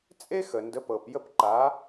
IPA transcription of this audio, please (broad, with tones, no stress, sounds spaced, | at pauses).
t͡sʼ e˥ x ə˩ n d ə˩˥ p ɤ˩ p j ə˥˩ p ǃ aː˩˥